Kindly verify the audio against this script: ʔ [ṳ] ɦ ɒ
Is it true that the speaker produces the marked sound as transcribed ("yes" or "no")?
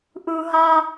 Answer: no